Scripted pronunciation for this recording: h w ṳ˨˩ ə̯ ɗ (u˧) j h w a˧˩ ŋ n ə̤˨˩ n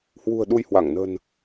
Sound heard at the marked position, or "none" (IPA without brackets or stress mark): u˧